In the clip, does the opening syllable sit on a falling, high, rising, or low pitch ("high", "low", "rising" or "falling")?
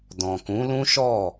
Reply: low